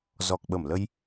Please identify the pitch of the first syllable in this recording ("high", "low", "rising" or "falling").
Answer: low